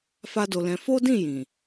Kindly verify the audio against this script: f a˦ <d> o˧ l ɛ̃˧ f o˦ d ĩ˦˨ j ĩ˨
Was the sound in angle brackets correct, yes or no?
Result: yes